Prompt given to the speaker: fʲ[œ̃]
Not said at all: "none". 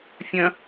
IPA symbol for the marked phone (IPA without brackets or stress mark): œ̃